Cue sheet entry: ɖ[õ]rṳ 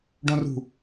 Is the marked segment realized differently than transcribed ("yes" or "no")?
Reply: no